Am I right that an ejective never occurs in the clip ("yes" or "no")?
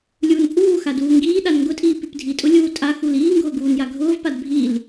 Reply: no